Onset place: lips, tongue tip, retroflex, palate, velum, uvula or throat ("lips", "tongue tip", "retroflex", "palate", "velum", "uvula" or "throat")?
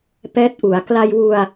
lips